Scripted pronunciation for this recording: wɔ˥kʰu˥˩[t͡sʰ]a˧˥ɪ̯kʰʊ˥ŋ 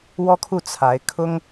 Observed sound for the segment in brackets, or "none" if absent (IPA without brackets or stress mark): t͡sʰ